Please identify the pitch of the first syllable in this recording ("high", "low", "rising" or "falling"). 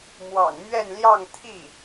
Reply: low